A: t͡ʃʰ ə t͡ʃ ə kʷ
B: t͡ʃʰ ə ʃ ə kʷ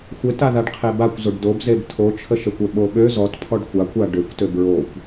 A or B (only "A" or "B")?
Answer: B